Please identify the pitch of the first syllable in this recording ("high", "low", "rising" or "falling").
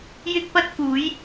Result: high